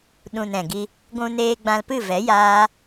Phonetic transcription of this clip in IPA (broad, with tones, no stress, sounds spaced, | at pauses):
ɗ ũ˨ n ɛ̃˨ ɡ i˧ | ɡʷ ũ˧ n eː˧ ɡ͡b ã˧ l p ɨ˦˨ v ɛ˨˦ j aː˦